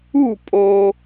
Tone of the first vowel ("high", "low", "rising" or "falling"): falling